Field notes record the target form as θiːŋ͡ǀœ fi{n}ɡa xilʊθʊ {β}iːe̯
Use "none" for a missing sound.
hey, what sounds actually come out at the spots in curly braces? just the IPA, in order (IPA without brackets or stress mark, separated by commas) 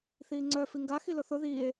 ŋ, ð